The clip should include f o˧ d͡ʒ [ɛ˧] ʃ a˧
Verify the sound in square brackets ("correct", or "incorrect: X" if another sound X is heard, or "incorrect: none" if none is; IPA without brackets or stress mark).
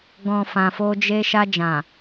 incorrect: e˧